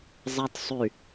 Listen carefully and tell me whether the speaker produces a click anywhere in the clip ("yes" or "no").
no